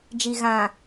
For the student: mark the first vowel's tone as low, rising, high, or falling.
low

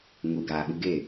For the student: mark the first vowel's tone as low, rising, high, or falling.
low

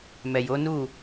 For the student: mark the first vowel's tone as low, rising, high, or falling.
low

